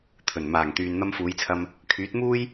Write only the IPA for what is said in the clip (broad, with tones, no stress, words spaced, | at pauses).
t̪ʰɵ˨˩nmaː˨˩ŋ t̪yː˨nn̪ɐ˧mfuː˨˧jt͡sʰɐ˧m | kʰyː˨˥t̚muː˥j